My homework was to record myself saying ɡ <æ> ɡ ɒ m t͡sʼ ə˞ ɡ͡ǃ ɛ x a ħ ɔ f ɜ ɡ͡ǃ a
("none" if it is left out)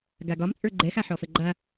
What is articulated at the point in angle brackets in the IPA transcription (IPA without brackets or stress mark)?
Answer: a